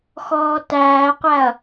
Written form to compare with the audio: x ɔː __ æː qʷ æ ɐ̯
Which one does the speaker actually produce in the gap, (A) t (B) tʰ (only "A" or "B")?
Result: A